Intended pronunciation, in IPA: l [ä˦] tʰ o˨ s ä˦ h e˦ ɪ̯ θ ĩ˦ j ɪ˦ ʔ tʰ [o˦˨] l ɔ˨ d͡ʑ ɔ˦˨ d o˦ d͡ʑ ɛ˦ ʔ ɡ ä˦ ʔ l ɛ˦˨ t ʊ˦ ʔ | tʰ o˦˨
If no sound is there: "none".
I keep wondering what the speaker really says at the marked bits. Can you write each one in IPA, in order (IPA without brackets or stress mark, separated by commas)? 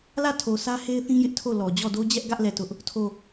ä˦˨, o˦˨